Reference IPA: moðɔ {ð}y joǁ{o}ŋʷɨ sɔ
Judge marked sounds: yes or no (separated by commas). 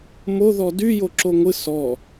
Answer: no, yes